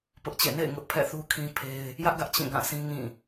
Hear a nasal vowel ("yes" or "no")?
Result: yes